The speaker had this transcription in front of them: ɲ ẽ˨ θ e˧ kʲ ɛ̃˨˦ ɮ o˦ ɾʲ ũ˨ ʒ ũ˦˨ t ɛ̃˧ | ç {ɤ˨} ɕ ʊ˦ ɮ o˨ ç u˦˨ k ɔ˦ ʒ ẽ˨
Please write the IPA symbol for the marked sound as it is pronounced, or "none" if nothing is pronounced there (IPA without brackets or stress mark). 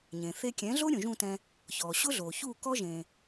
ɔ˨